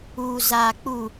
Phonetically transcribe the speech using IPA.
uː˨ z aː˨ k͡p uː˨

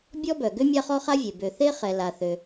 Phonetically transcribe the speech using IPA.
bʲ ɔ˥ b œ˩ ɡ ø˥ mʲ a˥ χ ɔ˥ χ a˥ vʲ e˩ b ø˩ θ e˥ χ ɛ˩ l a˩ θ ø˩

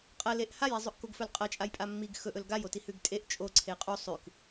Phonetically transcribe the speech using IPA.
qʼ ɐ l e ʔ h a j i zˤ ɵ ʔ k o ɡ f ɵ l qʼ ɐ t͡ʃʼ a j pʼ a mː i ɡ x ɵ ʔ ɵ l ɡ a j o t i h ʉ ɡ tʼ e ʔ t͡ʃʼ o ǀʰ e qʼ u sˤ ʉ k

